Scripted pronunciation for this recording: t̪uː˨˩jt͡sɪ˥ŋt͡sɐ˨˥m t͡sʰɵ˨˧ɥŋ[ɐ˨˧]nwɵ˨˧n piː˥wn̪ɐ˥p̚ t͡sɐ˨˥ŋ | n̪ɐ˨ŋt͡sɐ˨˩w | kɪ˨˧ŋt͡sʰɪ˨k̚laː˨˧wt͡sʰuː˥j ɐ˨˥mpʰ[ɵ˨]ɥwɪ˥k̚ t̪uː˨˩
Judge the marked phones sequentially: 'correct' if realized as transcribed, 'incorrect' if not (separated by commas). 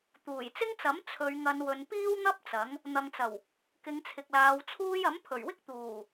correct, incorrect